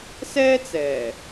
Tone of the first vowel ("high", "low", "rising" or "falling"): high